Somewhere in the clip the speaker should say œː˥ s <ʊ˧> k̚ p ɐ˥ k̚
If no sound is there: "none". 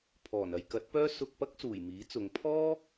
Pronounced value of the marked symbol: ʊ˧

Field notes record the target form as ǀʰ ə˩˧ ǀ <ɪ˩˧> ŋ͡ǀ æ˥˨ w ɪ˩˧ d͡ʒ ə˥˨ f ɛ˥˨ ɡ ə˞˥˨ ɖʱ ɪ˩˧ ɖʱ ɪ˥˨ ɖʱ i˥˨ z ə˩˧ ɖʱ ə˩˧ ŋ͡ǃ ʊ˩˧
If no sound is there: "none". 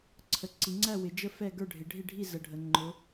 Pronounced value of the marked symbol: i˩˧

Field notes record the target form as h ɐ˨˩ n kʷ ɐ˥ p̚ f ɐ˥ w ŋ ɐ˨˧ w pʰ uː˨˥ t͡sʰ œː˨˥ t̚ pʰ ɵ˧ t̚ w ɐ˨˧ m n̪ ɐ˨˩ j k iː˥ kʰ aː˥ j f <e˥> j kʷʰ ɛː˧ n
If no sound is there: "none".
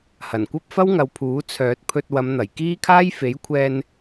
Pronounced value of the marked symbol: e˨˥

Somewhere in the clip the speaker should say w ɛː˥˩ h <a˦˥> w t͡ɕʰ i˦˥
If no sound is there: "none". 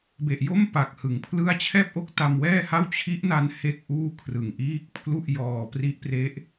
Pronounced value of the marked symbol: a˥˩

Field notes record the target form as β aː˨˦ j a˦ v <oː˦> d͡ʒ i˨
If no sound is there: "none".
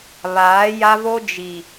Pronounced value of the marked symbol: o˦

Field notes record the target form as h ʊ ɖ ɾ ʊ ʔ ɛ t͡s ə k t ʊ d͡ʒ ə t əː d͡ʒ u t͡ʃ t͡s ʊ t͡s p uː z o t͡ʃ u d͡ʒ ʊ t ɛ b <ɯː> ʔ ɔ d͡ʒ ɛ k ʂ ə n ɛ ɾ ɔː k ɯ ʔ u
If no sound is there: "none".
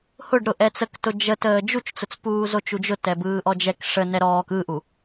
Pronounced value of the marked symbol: ɯː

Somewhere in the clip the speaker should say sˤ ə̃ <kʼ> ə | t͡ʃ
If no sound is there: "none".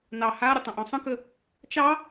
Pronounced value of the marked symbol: k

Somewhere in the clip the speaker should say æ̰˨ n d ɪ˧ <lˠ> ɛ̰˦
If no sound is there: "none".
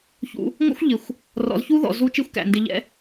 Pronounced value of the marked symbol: ʎ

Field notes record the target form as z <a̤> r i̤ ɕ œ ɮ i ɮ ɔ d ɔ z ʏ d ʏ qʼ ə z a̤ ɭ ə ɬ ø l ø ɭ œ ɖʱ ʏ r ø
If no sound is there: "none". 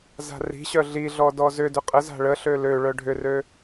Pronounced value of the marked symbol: a̤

